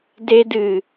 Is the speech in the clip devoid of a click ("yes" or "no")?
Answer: yes